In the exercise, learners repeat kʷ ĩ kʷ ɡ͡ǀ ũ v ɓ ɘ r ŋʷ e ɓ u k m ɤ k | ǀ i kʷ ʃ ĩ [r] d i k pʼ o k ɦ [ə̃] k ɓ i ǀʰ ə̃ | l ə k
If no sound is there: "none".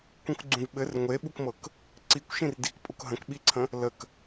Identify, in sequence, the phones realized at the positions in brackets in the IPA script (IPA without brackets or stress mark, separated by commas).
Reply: r, ə̃